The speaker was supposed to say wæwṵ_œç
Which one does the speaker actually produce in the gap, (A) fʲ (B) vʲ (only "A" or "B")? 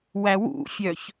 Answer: A